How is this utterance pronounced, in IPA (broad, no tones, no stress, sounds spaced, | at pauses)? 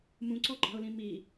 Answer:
m ũ ǀ ɔ ɡ͡ǃ ɑ̤ ʊ̯ l ĩ m i